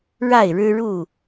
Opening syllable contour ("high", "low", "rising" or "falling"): falling